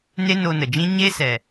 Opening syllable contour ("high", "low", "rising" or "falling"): high